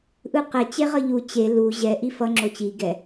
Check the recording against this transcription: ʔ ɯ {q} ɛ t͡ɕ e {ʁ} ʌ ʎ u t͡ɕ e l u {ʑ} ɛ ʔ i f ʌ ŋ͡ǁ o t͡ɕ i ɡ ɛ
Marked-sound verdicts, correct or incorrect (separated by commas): correct, correct, correct